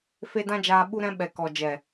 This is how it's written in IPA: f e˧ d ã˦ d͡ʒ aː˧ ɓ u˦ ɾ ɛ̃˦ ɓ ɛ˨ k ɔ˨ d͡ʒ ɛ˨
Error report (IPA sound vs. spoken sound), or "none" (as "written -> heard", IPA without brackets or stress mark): none